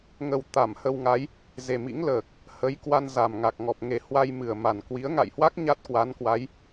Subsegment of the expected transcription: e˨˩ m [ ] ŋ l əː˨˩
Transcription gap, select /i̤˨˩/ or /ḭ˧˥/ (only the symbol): ḭ˧˥